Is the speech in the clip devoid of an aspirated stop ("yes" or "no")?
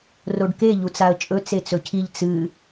no